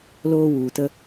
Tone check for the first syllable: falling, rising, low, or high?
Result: high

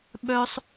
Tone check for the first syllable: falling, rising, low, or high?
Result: high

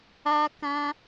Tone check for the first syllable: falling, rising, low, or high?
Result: high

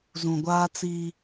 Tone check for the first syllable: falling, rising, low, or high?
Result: low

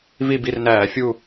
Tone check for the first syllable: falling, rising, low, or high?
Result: falling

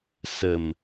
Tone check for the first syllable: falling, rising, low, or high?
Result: low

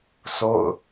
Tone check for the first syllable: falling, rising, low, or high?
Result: falling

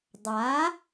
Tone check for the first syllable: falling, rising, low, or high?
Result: rising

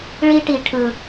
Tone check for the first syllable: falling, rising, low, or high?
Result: high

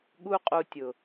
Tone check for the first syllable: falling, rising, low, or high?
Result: high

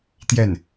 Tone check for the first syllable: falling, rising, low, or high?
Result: falling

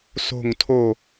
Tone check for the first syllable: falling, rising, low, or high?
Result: falling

